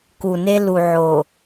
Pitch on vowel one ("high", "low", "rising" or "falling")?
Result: low